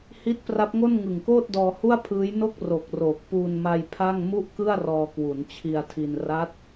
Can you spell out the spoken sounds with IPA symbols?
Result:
h i˦˥ t̚ p r a˦˥ p̚ ŋ o˥˩ n ŋ ɯ˨˩ ŋ k oː˥˩ t̚ d ɔː˧ h u˥˩ a̯ pʰ ɯː˦˥ j n o˥˩ k̚ r o˨˩ k̚ r oː˨˩ k̚ p uː˧ n m a˧ j pʰ a˥˩ ŋ m u˥˩ ʔ k ɯ˥˩ a̯ r ɔː˧ k w u˩˦ n t͡ɕʰ i˧ a̯ tʰ i˧ n r a˦˥ t̚

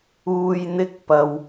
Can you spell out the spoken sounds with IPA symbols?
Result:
uː˨ j n̪ ɪ˧ k̚ p ɐ˨ w

